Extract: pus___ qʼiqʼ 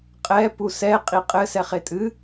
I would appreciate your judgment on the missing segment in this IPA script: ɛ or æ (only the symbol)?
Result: ɛ